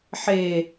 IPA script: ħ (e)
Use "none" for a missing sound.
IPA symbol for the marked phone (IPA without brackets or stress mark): e